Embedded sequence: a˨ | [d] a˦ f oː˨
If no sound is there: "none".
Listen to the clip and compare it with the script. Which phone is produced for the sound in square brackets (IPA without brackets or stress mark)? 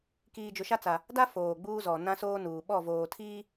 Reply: d